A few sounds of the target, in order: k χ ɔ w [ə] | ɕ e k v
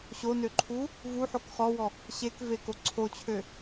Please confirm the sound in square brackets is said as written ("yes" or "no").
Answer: no